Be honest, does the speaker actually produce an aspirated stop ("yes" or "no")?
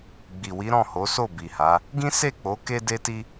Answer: no